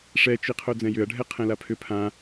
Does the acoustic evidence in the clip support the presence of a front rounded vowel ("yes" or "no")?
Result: yes